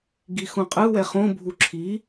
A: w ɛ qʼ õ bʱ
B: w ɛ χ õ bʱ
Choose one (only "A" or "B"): B